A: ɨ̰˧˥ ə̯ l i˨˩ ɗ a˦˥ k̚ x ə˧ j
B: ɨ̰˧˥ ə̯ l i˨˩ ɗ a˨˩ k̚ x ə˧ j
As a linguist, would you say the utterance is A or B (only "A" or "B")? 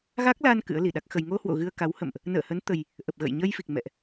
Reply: A